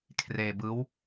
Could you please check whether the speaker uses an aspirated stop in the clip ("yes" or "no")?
yes